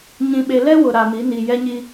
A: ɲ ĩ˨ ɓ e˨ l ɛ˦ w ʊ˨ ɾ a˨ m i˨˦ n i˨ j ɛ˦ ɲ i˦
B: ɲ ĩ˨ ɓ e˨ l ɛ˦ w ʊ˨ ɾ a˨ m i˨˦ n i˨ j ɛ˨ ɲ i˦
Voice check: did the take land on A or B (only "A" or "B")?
A